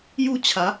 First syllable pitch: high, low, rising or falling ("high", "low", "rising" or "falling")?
falling